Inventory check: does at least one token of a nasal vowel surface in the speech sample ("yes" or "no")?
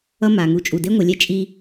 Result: no